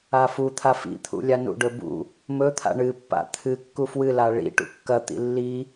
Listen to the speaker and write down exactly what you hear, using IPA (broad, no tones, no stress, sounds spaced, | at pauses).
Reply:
a f u t̪ʰ a f ḭ t̪ʰ ṵ lʲ a n ṵ ɖ ɵ b ṵ | m ɵ t̪ʰ a̰ ɳ ɨ pː a̰ t̪ʰ ɨ kː u f w ɨ l a ɭ ḭ ʈ ṵ kː ɐ t̪ ḭ lː i